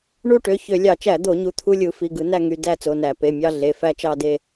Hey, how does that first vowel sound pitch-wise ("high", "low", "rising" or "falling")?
falling